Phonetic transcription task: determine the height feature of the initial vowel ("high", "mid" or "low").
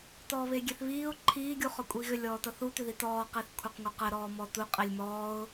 mid